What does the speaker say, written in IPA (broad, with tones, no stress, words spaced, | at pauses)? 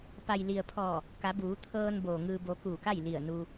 pa˩jli˩ə̯pʰɔː˧˩ | ka˩˧buː˩˧ t̪ʰɤː˧n boː˩ŋɯː˧bo˧ kuː˧˩ka˥˨jli˧˩ə̯nu˧